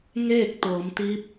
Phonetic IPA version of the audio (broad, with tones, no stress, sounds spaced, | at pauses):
ŋ eː˥˨ k̚ t̪ ɤː˩˧ m t̪ i˧˥ p̚